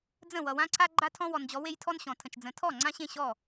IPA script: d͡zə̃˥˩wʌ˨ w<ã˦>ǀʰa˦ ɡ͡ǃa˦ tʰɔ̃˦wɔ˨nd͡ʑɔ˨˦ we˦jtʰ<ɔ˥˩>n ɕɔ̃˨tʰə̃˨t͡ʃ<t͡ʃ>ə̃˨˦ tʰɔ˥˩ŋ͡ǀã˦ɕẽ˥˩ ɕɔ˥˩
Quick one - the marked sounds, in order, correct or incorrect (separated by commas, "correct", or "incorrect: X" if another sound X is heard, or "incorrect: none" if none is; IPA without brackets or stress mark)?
correct, incorrect: ɔ˦, incorrect: d͡z